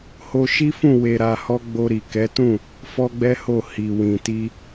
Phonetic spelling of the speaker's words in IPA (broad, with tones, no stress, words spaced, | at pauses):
ho˧ʃi˦fũ˦˨ we˧ɾa˧hɔ˦ ɡ͡bo˧ɾi˨ kɛ˨˦tũ˦˨ | fɔ˦ɡ͡bɛ˦ho˦˨ hi˨ wĩ˨ti˧